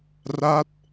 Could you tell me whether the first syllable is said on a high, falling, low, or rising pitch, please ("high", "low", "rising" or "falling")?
falling